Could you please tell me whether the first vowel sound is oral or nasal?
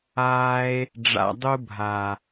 oral